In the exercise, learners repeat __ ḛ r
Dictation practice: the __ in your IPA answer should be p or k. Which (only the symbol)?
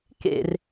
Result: k